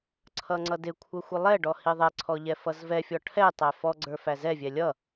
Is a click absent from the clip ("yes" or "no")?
no